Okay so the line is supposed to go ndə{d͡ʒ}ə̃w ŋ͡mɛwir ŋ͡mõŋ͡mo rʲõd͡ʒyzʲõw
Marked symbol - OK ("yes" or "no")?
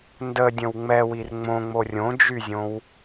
no